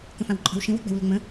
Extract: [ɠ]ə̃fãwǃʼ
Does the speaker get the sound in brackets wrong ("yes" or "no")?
yes